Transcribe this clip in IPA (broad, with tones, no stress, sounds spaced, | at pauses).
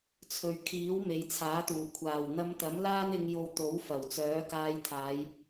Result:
t͡sʰ ɵ˨ ɥ kʰ iː˨˥ w m e˨ j t͡sʰ aː˨˥ t̪ uː˨˩ kʷʰ aː˨˩ w n̪ ɐ˧ m t̪ ɐ˨˥ m l aː˥ n ɪ˧ ŋ j o˧ w t̪ o˨˥ w f ɐ˨˩ w t͡s œː˨˥ k aː˧ j t̪ʰ aː˨˧ j